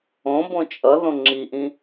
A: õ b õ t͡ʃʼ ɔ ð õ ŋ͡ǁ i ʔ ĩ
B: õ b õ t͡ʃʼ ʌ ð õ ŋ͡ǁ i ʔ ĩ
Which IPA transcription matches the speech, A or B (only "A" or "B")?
B